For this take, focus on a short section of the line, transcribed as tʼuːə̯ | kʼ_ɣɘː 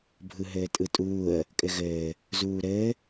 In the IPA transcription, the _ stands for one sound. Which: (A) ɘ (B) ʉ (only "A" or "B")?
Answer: A